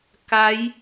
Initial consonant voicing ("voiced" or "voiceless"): voiceless